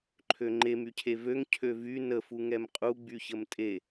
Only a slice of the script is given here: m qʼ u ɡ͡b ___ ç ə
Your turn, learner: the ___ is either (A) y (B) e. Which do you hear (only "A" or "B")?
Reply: A